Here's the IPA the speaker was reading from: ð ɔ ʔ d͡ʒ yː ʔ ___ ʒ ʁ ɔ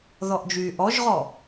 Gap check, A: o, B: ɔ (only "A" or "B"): B